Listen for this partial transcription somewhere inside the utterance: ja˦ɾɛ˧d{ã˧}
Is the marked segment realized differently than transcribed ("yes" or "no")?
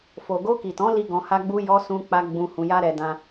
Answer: yes